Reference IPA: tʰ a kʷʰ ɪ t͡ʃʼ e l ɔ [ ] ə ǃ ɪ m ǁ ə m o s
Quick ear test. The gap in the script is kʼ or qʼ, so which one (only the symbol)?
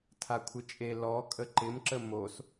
kʼ